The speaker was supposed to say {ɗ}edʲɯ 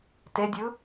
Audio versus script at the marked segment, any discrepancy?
yes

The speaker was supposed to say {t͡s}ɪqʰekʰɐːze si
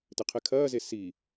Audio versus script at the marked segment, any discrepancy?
yes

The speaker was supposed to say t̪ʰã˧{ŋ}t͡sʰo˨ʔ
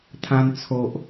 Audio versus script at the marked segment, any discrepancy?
yes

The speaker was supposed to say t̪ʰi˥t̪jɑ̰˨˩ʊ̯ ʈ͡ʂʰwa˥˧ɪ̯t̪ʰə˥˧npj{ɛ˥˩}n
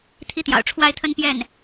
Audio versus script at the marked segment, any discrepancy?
no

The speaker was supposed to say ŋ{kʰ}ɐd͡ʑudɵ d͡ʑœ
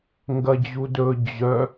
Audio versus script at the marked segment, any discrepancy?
yes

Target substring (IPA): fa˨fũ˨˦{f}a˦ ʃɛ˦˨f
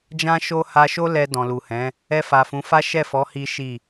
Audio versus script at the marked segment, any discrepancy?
no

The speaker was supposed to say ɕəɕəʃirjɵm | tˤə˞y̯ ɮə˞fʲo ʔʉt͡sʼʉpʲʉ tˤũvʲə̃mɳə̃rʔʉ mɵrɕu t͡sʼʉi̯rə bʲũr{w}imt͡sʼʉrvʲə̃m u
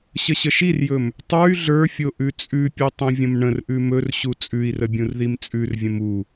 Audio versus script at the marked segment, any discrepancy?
yes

